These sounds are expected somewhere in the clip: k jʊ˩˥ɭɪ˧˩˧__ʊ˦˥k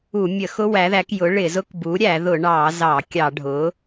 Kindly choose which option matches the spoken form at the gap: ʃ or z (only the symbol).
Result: z